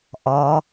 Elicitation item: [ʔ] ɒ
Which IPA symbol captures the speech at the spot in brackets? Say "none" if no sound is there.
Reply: ʔ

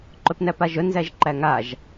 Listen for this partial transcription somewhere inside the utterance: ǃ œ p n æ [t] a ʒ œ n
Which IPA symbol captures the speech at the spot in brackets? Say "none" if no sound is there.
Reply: p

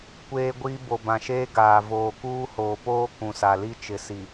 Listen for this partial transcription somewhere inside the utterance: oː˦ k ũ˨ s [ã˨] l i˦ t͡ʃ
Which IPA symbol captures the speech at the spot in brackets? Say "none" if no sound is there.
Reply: a˨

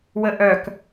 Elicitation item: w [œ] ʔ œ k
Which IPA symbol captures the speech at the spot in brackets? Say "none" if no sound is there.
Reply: ə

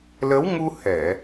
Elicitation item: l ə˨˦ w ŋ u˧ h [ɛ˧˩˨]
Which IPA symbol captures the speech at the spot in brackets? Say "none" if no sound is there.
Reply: ɛ˧˩˨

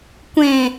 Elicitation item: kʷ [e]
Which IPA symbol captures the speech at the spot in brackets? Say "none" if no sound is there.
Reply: ẽ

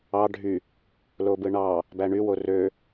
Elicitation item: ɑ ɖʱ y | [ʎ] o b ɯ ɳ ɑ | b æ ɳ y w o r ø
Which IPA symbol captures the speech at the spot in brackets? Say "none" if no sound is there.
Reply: l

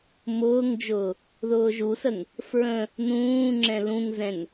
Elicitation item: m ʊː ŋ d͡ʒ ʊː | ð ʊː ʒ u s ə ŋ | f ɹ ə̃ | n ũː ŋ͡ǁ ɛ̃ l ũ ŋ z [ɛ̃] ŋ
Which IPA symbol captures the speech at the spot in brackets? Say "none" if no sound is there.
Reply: ɛ̃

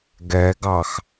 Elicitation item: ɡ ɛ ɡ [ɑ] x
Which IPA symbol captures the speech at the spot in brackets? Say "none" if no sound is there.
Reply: ɑ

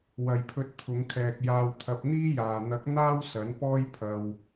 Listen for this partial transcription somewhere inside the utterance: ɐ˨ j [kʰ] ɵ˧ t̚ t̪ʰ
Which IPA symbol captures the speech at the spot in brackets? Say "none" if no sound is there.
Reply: pʰ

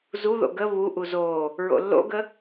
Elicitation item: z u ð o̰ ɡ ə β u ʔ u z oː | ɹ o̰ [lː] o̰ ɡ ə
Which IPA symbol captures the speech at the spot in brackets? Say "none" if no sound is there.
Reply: lː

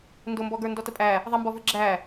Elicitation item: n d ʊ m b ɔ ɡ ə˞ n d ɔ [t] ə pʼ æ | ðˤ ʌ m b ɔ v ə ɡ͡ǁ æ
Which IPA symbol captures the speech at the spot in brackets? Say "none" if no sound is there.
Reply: t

